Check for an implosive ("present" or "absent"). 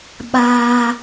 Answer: present